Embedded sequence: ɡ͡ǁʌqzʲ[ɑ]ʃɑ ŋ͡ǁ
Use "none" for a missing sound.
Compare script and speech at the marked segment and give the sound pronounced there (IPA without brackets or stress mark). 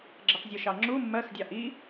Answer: ʌ